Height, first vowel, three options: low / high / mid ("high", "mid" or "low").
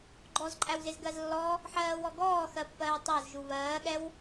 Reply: mid